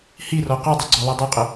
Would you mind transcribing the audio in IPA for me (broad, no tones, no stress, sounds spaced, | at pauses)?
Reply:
h i r ɔ q ɔ dˤ ɯ ɡ͡ǀ o lˠ ɜ dˤ ɛ qʼ ə